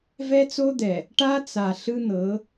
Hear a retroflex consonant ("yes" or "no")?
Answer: yes